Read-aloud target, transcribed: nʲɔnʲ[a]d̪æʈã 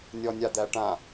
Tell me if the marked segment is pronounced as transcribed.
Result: yes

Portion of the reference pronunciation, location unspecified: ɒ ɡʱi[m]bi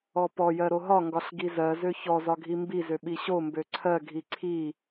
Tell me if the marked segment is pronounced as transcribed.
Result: yes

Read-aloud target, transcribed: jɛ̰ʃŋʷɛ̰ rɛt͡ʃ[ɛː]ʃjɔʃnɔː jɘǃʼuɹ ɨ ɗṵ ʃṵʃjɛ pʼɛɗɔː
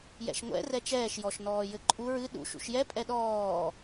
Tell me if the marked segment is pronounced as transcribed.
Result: yes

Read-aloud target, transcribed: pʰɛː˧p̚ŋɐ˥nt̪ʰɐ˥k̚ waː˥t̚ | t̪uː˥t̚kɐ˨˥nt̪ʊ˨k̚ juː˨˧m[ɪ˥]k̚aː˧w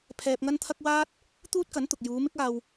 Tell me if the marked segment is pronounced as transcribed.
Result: yes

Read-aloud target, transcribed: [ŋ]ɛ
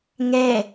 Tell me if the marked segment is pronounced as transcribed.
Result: yes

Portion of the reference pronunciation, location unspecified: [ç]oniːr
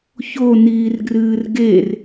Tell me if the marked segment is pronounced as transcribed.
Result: yes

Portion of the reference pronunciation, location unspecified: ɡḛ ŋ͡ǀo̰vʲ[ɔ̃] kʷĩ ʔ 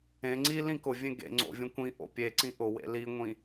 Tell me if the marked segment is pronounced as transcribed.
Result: no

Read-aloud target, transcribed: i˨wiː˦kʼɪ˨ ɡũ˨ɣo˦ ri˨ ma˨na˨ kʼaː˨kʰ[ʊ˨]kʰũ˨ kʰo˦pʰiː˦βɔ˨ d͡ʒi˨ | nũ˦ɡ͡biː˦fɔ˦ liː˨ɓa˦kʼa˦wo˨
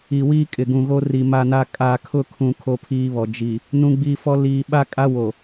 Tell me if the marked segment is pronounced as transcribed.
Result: no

